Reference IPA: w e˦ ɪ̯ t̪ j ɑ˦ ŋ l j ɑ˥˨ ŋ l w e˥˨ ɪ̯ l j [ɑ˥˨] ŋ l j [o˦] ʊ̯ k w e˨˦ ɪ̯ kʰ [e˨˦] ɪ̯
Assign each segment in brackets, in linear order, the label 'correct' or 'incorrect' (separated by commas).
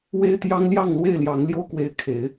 incorrect, correct, correct